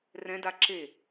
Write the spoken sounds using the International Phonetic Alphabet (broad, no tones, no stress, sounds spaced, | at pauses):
r ɛ̃ d a ǁ e